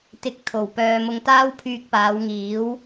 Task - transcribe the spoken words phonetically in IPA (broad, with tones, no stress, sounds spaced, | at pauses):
t̪ ɪ˨˥ k̚ t̪ʰ o˨˩ w p œː˨ m ʊ˧ ŋ t̪ aː˥ w pʰ yː˧ k̚ p aː˨˧ w ŋ iː˨˥ w